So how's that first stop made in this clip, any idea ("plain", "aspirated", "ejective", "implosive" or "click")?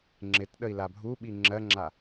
click